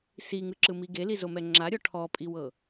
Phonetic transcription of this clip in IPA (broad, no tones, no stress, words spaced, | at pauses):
siŋɯǁɯmi ɡelizomɛ ŋ͡ǁaɾʲɔ ʈʰɔpʼiwɤ